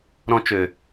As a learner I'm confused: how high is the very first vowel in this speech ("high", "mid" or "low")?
mid